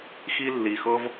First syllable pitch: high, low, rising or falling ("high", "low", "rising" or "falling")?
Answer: high